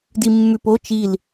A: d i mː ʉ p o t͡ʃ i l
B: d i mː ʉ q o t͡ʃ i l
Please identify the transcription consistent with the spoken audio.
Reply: A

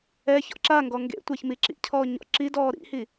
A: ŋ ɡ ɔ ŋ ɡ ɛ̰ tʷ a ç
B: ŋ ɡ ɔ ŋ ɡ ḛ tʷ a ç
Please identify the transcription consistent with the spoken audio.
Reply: B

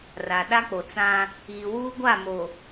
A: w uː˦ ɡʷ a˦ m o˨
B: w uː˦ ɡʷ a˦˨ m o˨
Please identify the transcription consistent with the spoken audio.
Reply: B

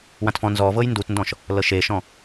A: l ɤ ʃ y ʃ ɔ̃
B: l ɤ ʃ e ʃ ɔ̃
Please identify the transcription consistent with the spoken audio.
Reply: B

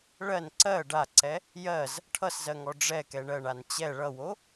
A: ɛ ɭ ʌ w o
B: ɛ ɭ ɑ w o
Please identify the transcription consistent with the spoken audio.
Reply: A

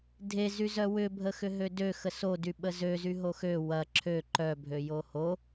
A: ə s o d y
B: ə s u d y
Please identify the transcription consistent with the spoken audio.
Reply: A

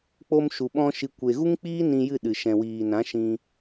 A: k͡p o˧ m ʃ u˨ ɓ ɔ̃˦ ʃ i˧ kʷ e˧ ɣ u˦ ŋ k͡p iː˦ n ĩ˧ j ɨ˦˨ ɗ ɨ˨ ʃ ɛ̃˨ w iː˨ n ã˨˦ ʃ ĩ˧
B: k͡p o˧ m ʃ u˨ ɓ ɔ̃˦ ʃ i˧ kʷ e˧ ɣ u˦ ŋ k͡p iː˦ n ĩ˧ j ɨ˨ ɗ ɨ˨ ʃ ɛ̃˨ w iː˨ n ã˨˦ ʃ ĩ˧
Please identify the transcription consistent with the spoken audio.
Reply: A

